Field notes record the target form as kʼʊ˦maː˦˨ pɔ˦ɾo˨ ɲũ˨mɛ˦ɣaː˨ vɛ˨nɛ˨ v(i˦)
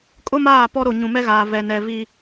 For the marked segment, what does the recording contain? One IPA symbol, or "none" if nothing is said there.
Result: i˦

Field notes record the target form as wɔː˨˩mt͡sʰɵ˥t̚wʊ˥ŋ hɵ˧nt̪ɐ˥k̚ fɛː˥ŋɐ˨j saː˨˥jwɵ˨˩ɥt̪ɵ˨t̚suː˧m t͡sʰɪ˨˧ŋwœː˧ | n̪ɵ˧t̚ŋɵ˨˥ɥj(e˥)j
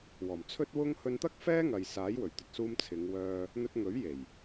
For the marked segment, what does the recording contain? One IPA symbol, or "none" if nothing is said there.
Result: e˨˩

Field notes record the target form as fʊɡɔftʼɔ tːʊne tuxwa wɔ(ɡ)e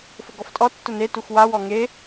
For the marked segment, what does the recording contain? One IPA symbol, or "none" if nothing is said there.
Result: ŋ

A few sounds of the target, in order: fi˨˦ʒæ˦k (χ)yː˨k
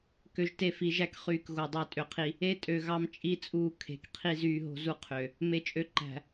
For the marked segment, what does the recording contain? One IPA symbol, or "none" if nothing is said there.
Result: χ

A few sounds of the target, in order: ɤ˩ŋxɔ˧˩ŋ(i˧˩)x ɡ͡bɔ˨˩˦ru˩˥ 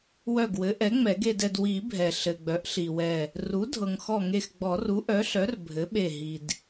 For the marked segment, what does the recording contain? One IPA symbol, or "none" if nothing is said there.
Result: e˧˩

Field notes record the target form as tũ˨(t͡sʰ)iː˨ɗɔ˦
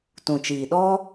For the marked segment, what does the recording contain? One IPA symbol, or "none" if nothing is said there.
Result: t͡ʃ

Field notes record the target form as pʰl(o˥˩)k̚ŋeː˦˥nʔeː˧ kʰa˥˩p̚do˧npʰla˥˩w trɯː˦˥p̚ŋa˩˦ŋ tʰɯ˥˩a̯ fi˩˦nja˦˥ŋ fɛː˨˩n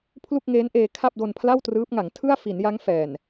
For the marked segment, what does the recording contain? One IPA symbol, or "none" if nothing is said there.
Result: u˥˩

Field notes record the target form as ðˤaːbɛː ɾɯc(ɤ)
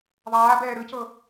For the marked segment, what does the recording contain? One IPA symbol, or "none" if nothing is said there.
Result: ɤ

